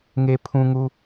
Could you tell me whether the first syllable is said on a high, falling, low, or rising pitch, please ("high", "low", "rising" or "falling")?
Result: low